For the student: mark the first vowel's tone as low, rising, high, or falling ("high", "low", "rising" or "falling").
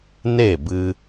falling